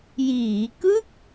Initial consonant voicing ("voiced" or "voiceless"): voiced